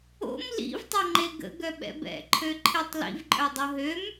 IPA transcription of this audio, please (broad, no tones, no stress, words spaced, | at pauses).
o̰m lḭvtˤoŋ͡ǃe ɡə̰ɡœɓɛ̰b ɛ̰ǃʰøǃʰetˤ lḭvǃʼœdˤo ɦøm